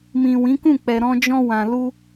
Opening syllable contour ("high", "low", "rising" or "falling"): low